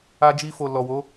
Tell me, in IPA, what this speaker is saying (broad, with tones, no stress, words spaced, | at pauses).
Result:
a˧d͡ʒi˧fo˨ lɔ˨wo˨˦